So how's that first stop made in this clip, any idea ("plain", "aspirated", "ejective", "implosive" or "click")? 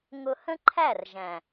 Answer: click